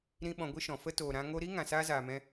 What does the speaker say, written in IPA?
ɾ ĩ˦ ɓ ɔ̃˧ ɡʷ ɨ˦ ʃ ɔ̃˨ f ə˦ t oː˨ ɾ ã˧ ŋ o˧ ɾ i˦ ŋ ã˨ s aː˦ z aː˨ m ɛ̃˧

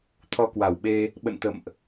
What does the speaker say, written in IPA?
t̪ʰ ɔ˧ k w a˧˩ w ɓ e˧ | ɓ ə̰˧˨ n t̪ ə̰˧˨ m ʔ

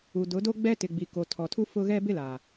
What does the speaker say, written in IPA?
u˨ d ʊ˨˦ d o˦ ɡ͡b ɛ˦ t ɪ˨ ɡ͡b i˨ k o˨ tʰ ɔ˨ tʰ u˦ f ʊ˦ ɣ ɛ˦ b ɪ˦ l aː˨

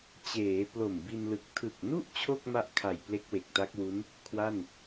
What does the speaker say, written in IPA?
t͡ɕ eː˩˦ p l o˨˩ m b i˧ n l ɯ˨˩ k̚ tʰ ɯ˨˩ k̚ n u˥˩ ʔ t͡ɕʰ o˥˩ k̚ m a˦˥ ʔ kʰ a˨˩ j p l e˦˥ k̚ w e˨˩ k̚ t a˦˥ k̚ w u˦˥ n | kʰ w a˥˩ n

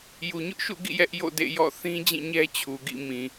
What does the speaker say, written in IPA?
j u˨ ɲ ʊ˦ ʔ ʃ ṵ˦˨ ɡ ḭ˦˨ j ɛ˦ ʔ j o̰˦˨ d ḛ˦˨ j ɔ̰˦˨ θ ĩ˦ d͡ʑ ĩ˦˨ ɲ ɛ˦ t͡ɕʰ u˨ ɡ ḭ˦˨ m ĩ˨

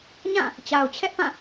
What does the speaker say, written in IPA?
ɲ ã˦˨ | t͡ɕ a˨ ʊ̯ t͡ɕʰ ɛ˦ ʔ p ã˦˨

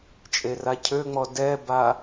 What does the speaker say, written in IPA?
t͡ʃʼ e r a cʰ ø ŋ͡m ɔ d ɛ b a

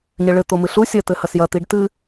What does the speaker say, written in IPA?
ɲ ɘ ɭ ɘ t̪ o m ɨ ɬ u sʲ ɐ t̪ ɘ h ɐ s j ɐ t̪ i ɖ t̪ ɨ

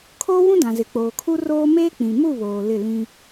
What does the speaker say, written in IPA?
kʰ oː˦ w ũ˦ d ã˨ z ɪ˨ k͡p oː˨ kʰ u˦ r oː˦ m eː˦ k͡p ĩ˨ m u˦˨ β oː˨ l ɪ˦˨ l ĩ˦

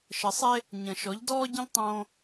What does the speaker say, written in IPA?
ʃ ə˨ sˤ e˦ | ɲ ə̃˨ ʃ ɔ˨˦ ʎ d ɔː˦ ɟ ə̃˦ ʎ tˤ õː˦

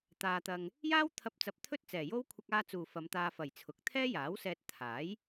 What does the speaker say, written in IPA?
t̪ aː˧ t̪ ɐ˧ ŋ | j aː˥ w t̪ʰ ɐ˧ p̚ t͡s ɐ˧ p̚ t̪ʰ ɵ˥ t̚ t͡s ɛː˨ j o˥ w kʷʰ ɐ˧ k̚ aː˧ t͡s uː˨ f ɐ˨˧ m t̪ aː˧ f ɐ˨ j t͡sʰ ʊ˨˥ k̚ t̪ʰ ɛː˥ j aː˨˥ w s ɛː˧ t̚ t̪ʰ aː˨˥ j

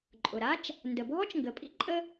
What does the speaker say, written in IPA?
ǃʼ ʊ˩ ɾ a˥ t͡ʃ | n d ə˩ bʱ ɔ˥ t͡ʃ ŋ ɡ ə˩ pʼ ḭ˥ ǃʼ ə˥

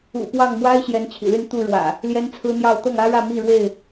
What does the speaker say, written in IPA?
ṵ˨˩ p w ɑ˥˨ ŋ m w a˦ ɪ̯ ɕ j ɛ˨˦ n t͡ɕʰ ḭ˨˩ l y˥˨ n t̪ u˥˨ ɻ w ä̰˨˩ | l j ɛ˦ n t͡sʰ ɹ̩˦ n̪ j ɑ˥˨ ʊ̯ t̪ ɤ˥˨ ŋ ä˦ ɻ ä˥˨ m i˥˨ ɻ w e˥˨ ɪ̯

